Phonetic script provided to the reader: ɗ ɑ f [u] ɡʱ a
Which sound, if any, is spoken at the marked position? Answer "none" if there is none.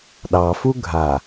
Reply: u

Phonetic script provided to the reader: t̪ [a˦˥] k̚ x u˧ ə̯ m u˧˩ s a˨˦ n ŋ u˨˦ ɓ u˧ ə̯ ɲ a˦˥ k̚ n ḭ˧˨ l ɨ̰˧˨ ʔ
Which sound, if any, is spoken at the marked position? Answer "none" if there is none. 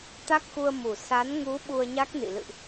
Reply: a˦˥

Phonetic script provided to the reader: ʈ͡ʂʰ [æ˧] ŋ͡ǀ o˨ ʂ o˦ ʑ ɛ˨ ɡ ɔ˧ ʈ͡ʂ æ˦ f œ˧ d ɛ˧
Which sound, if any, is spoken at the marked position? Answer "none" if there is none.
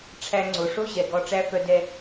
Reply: æ˧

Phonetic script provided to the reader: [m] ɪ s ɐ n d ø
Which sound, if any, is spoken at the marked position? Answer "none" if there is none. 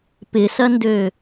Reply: p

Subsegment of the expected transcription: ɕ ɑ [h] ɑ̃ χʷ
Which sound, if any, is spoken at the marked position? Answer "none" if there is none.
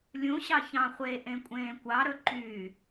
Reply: ç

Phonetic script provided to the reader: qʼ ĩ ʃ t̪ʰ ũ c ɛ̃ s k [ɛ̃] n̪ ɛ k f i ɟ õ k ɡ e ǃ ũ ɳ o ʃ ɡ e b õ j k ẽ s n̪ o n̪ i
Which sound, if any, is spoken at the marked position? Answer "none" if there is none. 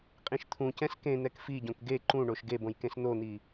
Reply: ẽ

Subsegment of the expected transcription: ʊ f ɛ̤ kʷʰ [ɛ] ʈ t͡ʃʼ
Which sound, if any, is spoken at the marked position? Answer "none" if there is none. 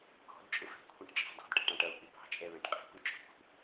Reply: ɛ̃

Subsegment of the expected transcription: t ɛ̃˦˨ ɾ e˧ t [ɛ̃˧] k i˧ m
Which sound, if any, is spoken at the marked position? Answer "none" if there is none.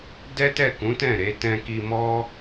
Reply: ɛ̃˧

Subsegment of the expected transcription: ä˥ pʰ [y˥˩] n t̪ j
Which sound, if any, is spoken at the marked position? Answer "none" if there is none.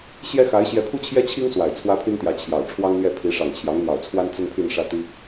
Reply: y˥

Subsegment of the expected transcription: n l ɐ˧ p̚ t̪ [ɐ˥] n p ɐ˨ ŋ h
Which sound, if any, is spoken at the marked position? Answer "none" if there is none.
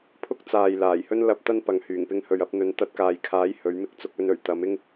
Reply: ɐ˥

